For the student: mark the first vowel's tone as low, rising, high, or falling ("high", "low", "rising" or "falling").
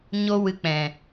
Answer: high